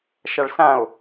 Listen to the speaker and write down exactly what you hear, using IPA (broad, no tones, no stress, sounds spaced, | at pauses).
ʃ a ɭ s ã o̯